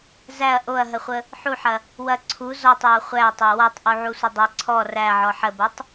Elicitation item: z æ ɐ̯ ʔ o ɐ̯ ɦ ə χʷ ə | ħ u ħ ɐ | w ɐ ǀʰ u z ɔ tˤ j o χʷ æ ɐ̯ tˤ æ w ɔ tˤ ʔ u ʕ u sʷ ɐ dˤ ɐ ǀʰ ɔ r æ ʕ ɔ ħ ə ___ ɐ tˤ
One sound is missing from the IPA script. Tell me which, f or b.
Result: b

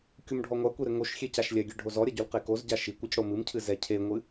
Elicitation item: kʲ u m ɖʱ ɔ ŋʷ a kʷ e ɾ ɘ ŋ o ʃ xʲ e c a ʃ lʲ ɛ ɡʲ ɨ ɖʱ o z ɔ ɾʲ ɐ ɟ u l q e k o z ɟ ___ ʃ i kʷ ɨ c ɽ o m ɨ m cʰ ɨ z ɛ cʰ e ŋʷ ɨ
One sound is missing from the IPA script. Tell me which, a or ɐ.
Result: a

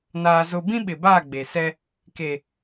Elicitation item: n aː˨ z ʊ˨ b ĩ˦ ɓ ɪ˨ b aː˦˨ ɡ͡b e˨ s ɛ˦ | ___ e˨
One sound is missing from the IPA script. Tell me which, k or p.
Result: k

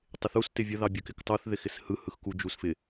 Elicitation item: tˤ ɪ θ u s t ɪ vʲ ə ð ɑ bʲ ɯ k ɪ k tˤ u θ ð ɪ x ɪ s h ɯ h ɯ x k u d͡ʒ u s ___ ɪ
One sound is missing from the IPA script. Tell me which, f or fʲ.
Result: f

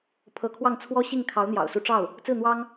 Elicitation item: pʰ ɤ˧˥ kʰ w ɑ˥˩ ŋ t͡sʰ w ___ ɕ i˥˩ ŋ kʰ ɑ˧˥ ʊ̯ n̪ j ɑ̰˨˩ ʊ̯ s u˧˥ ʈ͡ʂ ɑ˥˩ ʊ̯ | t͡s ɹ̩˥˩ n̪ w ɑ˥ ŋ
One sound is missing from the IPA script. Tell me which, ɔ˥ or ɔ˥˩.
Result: ɔ˥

